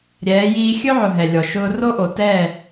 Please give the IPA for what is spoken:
ɾʲɛː˨˦jiː˦ xʲɵ˦ʕʊ˨ ɦɛ˨lʲɔ˨ ʃʊː˦ ro˦ʔo˨tɛː˦˨

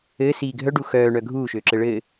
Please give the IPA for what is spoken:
ɘː siːɡʱœɖu xœːɳœ ɡʱuːʃøːǁɘ ɭɘː

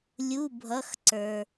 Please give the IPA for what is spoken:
lʲu˧˥˧bʱʌ˧˥˧xǀə˞˧

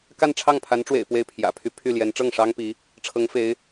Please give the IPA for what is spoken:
ka˥˧nʈ͡ʂʰɑ˥˩ŋpʰa˧˥nʈ͡ʂwḛ˨˩ɪ̯ pwe˥˩ɪ̯pʰjä̰˨˩pʰy˥ pʰy˥˩ljɛ˧˥n ʈ͡ʂɤ˥˩ŋʂɑ˥ŋpi˧˥ | ʈ͡ʂʰɤ˧˥ŋfe˧˥ɪ̯

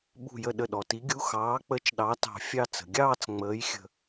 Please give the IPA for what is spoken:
ɓṳ˧˩jə˧˩ ɗə˧˩ɗɔ˩ti˨˥ɡʲu˧˥˧ xɑː˨˥k͡pə˧˥˧t͡ʃɗɑ˨˥ tɑ̤˧˩fʲɑ˥˧ t͡sə̤˩ɡʲɑː˥˧t͡s ŋ͡məː˨˥jxʲə̤˧˩

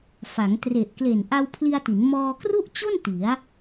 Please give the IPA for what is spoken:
fa˩˦ŋtre˨˩ʔ kle˨˩nʔa˧wpʰli˧a̯ti˩˦n mɔː˧kru˥˩ʔt͡ɕo˥˩n ti˩˦a̯

